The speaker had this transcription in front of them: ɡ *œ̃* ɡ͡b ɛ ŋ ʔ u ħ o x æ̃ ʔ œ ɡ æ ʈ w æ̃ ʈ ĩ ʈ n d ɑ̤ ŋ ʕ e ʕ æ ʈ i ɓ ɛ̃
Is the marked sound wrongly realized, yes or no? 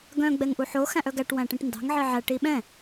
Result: no